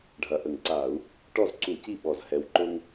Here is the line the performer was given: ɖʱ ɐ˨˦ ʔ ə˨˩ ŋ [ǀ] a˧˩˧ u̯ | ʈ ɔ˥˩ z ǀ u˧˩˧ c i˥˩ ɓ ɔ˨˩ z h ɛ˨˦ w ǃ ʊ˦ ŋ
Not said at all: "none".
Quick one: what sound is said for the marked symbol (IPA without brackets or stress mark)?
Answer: ǀ